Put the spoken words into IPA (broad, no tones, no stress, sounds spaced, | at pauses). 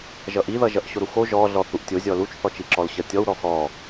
ʒ ʌ ʔ i ð ʌ ʒ ʌ ʔ ɕ o ɾ u x o ʒ ɔ ɮ ɔ θ u ʔ tʲ o zʲ ɔ l u t͡ʃ θ ɔ t͡ʃ i ǁ ɔ l ɕ ʌ tʲ ɔ w ɾ ɔ x ɔ